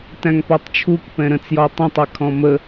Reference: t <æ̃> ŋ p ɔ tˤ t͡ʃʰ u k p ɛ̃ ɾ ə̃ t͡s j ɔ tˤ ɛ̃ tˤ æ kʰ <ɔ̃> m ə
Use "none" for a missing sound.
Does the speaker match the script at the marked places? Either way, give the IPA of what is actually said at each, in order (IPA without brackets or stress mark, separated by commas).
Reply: æ̃, ɔ̃